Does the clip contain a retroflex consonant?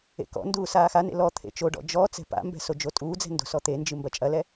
yes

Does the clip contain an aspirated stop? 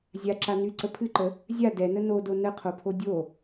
yes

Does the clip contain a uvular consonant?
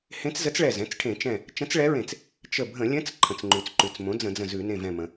no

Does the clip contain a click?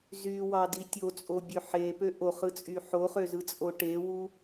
no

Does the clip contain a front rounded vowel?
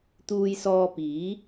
no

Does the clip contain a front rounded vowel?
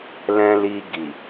no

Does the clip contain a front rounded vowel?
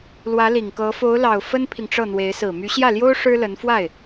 yes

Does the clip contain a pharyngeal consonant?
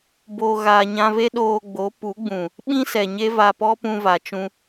no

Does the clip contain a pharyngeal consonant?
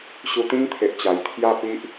no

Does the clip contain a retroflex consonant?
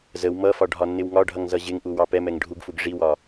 yes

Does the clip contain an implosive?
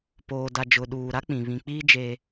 yes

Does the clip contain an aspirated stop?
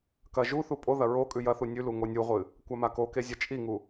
no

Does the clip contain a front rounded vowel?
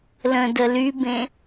yes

